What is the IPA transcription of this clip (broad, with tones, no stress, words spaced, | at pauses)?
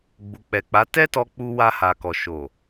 ɡ͡bu˨k͡pɛ˨k͡pa˨˦ tɛ˦tɔ˧ k͡pu˧ wa˧ha˨kɔ˨ ʃo˨